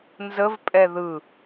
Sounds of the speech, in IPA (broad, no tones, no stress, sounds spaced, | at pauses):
n z ə v pʼ ɛ ð ɯ